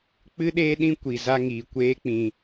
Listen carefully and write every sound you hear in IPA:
k͡p ɨ˦ ɗ eː˦ ɗ ĩ˦ kʷ i˨ z a˧ ŋ iː˨ kʷ eː˦ k͡p ĩ˧

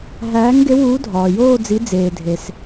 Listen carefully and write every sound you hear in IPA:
ɦ æː˨˥ ŋ ɡ e˨˥ w uː˨˥ dʱ ɒː˩ j oː˥˧ d͡z i˨˥ d͡z eː˩ dʱ e˩ s

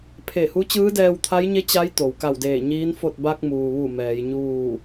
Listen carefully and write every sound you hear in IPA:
pʰ e˧˩ h u˧˥ t͡ɕ ɯː˧˥ d ɛː˧ w t̪ʰ a˧˥ j ɲ e˧˥ t͡ɕ a˧˥ j t̪ o˩ w k a˧˩ w d eː˧˩ ɲ iː˧˥ n f o˥˨ t̚ b a˧ k̚ m uː˩ ʋ u˧˩ m ɛː˩˧ j ɲ uː˥˨

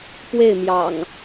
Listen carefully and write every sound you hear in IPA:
p w e˥˨ ɪ̯ m j ɑ̰˨˩ ŋ

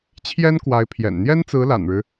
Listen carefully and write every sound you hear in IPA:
t͡ɕʰ j ɛ˥ n k w a˧˥ ɪ̯ pʰ j ɛ̰˨˩ n n̪ j ɛ˥ n t͡s ɹ̩˧˥ l a̰˨˩ n ɻ ɻ̩˦

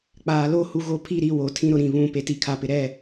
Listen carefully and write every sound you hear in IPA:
k͡p aː˨ l o˦ h u˨ ɣ o˦ pʰ i˦˨ ɾ i˨ w o˨ tʰ ĩ˦ ɾ ʊ˨ ɾ ĩ˦˨ β ũ˦˨ p e˨ t i˨ kʰ a˨ p ɪ˨ ɾ ɛ˦˨

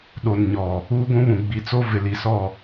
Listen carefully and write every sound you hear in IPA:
ɗ o˨ n ɲ ɔ˨ | uː˦ ɡʷ ũ˦ β ũ˨ ɡ͡b i˨ t͡s o˦ v ɪ˨ l i˨ s ɔ˦˨

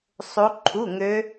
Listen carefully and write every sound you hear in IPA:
sˤ o˦˥ ǃʰ u˧˥˧ ŋ ø˦˥

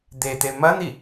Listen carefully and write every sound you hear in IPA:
d̪ e t̪ e m ɐ n̪ i

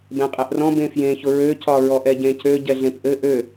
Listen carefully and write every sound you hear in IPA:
b ɛ̃ qʼ ɛ ʔ r ɔ̃ b ẽ f j ẽ ç ʊ ɹ ø c ɒ ɹ ɔ ʔ ɛ ɟ ẽ c ø ɟ ɛ ɮ ẽ p ʔ ɘ ʔ ø

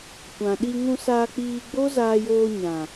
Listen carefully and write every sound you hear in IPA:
kʷ ã˨ ɗ i˧ ŋ ũ˧ s aː˧ k͡p iː˧ ɡ͡b o˦ z aː˧ j oː˧ ɲ ã˨

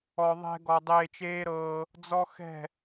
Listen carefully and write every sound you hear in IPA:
ɔ˨ ðˤ ɛ̤˧ ɡ ɔ˨ dˤ eː˧ t͡ʃ eː˦ ɾ ɤː˧ | d͡z ɔ˦ x ɛ̤˦˨

